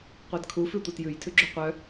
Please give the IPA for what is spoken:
qʷædkʰufʉ tʷɑtjʉjtʰʉɡ͡ǁy qʷœ

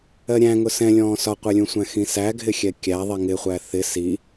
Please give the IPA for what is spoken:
ɜɾʲæ̃ŋʊ sɛ̃lʲɔ̃ː sɒqʷɛlʲũsʷæ̃ xĩsæɡʱɪ xʲɛkʲæ ðˤiŋɪχʷæ θɪ si

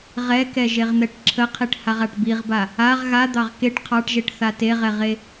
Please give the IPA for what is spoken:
ʁɛkɛʒeʁn̪ɛʈ ǁʰəqʰiʈ haʁaʈbiʁba | aʁ ɣa d̪ɑʁkeʈ qʰɑʈʒeʈθa teʁɛʁe

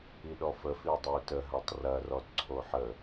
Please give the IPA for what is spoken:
iɗɔfə fidˤəu̯tə ɦatˤrɐ rɔdǀʰoħə

